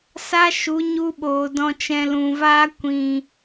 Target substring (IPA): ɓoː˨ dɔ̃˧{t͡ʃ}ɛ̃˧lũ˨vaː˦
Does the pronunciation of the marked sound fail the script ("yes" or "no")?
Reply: no